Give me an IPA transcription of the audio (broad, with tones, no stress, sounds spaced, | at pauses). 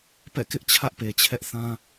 p ɛ̰˦˨ k ɪ˦ ʔ t͡ɕʰ ä˦ ʔ p e˨ t͡ɕʰ ɛ˦ ʔ θ ã˦